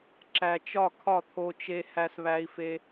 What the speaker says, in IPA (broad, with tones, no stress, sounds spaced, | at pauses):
ǁ æ˧ t͡ʃ ɒ˥˨ kʰ ɒ˥˨ t̪ʰ o˧ t͡ʃ e˧ h æ˧ s β æ˧ i̯ f e˧